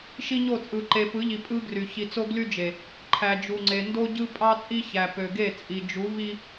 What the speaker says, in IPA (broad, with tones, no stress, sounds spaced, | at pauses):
ʃ i˦ ɲ o˦˨ t͡sʼ ɯ˨ ǃ e˨ p ɯ˨˦ ʎ i˨ pʼ ɯ˦ ɡ r y˨ ç i˨ t͡s o˦ ɡ l y˦ d͡ʒ e˨ | ǃʰ æ˨ d͡ʒ u˨ ŋ͡ǀ e˨ n d o˦ ɟ ɯ˦ pʼ ɑ˦ t͡sʼ i˦ ç æ˨ p ø˨ ɡ e˦˨ t͡sʼ i˨ d͡ʒ u˨˦ v i˦